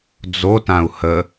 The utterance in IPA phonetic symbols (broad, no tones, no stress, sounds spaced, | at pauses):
d͡z o t ã u̯ h ə